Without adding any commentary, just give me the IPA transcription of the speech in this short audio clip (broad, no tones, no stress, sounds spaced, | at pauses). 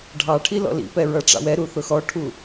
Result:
ɖʱ ɑ ʈʰ i l ɔ̰ l ḭ p ɛ ɹ ʌ ʈ͡ʂ ɑ̰ w ɛ ɾ u θ ʊ x ɔ ʈʰ u